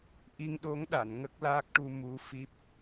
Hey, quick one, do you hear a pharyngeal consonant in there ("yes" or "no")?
no